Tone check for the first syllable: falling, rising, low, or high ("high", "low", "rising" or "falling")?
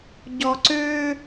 low